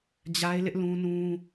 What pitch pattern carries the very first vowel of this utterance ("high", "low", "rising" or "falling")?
high